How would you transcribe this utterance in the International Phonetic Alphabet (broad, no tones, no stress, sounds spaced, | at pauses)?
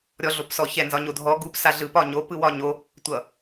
ɾʲ ɔ ɮ o p s ɔ ç ɛ n z ɒ ɲ o dʱ ɔ ɡ u p s a ɮ ɯ p ɒ ɲ o p ɯ w ɒ ɲ o | tʷ ʌ